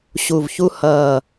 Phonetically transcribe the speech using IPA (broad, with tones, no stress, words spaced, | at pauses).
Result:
ɕu˨˩vçu˧hʌː˨˩